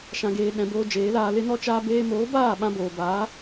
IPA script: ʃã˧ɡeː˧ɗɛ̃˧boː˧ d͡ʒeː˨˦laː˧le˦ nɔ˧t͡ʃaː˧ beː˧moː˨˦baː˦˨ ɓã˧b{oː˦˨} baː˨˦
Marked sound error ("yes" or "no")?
yes